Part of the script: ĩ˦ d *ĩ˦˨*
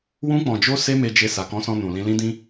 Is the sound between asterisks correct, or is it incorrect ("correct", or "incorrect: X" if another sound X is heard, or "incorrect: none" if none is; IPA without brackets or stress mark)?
incorrect: ĩ˦